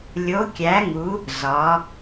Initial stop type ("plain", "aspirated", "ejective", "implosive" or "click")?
plain